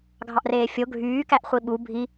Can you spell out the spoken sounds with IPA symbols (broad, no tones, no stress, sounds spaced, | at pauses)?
ɡʱ ɑ ʔ r eː fʲ o ɡʱ yː k æ ʔ χʷ i ɓ u bʱ i